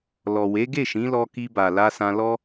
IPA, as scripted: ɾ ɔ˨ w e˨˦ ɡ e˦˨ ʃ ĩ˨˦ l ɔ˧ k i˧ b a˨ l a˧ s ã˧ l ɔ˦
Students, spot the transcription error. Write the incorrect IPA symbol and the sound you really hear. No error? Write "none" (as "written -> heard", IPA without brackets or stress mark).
ɾ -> l